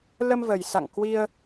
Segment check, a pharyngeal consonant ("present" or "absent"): absent